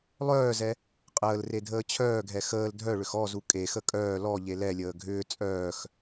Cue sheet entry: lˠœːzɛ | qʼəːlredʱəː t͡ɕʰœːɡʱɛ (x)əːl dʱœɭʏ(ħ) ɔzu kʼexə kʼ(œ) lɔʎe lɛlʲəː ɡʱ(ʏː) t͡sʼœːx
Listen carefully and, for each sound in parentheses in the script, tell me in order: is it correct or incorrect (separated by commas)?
correct, incorrect, incorrect, correct